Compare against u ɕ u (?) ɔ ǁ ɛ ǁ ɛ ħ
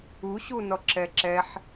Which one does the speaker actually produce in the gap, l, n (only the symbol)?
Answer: n